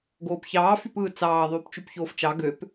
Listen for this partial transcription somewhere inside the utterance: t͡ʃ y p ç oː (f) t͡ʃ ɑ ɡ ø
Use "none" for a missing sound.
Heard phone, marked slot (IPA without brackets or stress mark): f